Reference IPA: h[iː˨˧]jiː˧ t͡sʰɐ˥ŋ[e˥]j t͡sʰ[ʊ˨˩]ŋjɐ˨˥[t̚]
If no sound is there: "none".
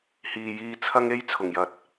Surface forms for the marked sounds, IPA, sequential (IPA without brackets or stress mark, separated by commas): iː˨, e˥, ʊ˨˩, t̚